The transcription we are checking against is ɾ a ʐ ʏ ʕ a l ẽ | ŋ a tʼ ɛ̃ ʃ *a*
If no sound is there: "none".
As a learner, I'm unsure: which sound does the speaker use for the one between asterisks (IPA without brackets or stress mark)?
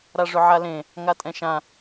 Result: ã